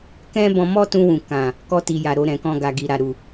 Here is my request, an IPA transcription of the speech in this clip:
k ɛ̃˦ b ɔ̃˧ m ɔ˦ t ũ˧ w ũ˨ k ã˨ | k ɔ˧ t i˨ j a˨ ɾ o˧ ɾ ɛ̃˨ k ɔ̃˧ ɡ a˨ ɡ i˨ ɾ a˨ ɾ u˨

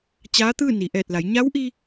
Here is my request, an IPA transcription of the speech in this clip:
t͡ɕ aː˧˥ t̪ ɯː˥˨ n i˩ ʔ ɛː˧˩ t̚ l a˩˧ j ɲ a˧˥ w ʔ i˧

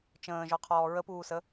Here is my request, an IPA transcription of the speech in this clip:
t͡ʃ ə̃ː ʒ ɔ qʰ ɔː ɹ ə p uː s ə

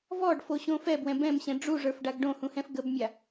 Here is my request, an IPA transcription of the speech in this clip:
v ɔ ɖ f o ɕ õ f ɛ b w ɛ̃ b ɛ̃ m ɕ ɛ̃ ɖ͡ʐ u ʐ ə˞ f ɖ a ɡ ɖ õ h ũ h ɛ̃ f ɡ ə b mʲ a

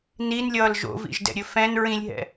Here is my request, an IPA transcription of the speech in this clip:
n i n lʲ ʌː l ʒ o̰ v ḭ ʒ d ɛ̰ ɾʲ ɵ f ɛ̃ n ɹ ĩ lʲ ɦ ɛ̰

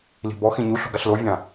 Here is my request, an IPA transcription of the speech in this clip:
l i̤ b ɔ x ĩ ɲ u ɬ o̤ ɡ a ɬ l o vʲ ã

